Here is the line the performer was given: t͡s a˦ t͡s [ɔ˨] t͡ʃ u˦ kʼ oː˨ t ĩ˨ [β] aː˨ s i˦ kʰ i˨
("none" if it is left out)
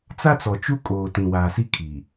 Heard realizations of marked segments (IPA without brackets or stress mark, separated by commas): ɔ˨, w